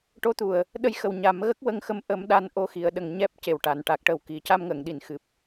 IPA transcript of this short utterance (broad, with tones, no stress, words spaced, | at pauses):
ʈo˧˥t̪u˨˩ə̯ | ɗə˧jxə˨˩w ɲa˨˩˦mɣə˦˥k̚ wə˧ŋxə˧m ʔə˨˩˦m ɗa˧n ʔo˧xi˨˩˨ə̯ɗə˨˩ŋ ɲɛ˦˥p̚ ce˨˩wʈa˨˩˨n ʈa˨˩k̚ʈə˨˩wki˨˩˨ ca˧mŋə˨˩˨ŋɗi˨˩˨n xɨ˨˩p̚